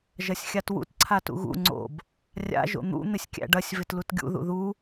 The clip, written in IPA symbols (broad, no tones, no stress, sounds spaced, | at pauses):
ʒ ɐ sʲ xʲ a t w ṵ t ǀʰ a t ṵ ɣ ṵ ŋ͡ǀ o̰ b | rʲ a̰ ʒ o̰ n̪ ṵ n̪ ɪ sʲ kʲ æ̰ ɖ ɐ sʲ v ɪ t l u t ɡʲ ṵ ð ṵ ð u